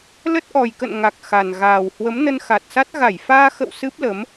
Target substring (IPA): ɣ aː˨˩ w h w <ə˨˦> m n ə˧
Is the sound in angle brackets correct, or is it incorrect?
correct